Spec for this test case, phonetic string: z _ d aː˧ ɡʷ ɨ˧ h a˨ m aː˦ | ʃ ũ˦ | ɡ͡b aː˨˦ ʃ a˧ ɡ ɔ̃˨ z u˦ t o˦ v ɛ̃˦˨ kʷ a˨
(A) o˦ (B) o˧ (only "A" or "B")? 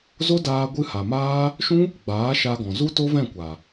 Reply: A